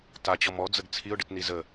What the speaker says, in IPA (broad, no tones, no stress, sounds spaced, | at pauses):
t a t͡ɕ ɔ m ɔ d͡z ə ɡ t͡sʰ i ʊ̯ ɖ ɨ t n i z ə